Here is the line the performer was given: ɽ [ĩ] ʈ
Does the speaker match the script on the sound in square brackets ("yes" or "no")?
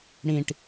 yes